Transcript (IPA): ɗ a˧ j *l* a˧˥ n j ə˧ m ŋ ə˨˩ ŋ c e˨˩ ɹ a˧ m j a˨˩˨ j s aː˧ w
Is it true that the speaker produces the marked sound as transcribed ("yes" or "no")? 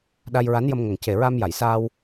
no